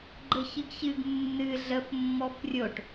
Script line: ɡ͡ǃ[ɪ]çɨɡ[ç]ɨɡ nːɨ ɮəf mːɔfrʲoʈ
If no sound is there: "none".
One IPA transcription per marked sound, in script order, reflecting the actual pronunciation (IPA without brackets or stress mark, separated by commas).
ə, ç